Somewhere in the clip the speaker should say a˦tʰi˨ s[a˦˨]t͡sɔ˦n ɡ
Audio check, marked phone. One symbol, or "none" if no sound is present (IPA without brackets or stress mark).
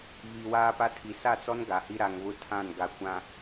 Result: a˦˨